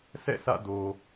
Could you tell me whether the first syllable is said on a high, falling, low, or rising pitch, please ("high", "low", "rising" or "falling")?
falling